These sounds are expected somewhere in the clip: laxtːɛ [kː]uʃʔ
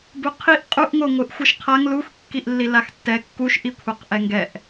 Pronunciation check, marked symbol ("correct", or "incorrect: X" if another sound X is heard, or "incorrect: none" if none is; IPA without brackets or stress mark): correct